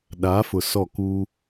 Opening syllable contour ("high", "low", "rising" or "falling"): rising